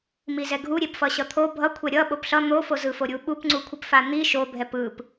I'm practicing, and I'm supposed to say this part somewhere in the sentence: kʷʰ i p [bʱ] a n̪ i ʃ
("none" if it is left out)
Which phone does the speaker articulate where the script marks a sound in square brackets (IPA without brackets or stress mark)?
f